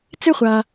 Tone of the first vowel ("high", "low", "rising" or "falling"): high